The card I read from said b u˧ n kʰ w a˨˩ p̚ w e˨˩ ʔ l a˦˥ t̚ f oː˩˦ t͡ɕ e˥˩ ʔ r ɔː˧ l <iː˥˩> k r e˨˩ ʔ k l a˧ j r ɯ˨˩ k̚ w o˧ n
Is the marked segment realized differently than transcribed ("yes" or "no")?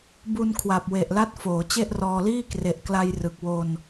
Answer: no